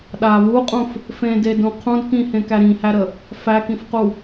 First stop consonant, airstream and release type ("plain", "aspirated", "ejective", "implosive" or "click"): implosive